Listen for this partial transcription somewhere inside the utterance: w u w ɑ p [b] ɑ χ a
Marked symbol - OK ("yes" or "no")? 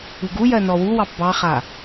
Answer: yes